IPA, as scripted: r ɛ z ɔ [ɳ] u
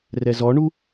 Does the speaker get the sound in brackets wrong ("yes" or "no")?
no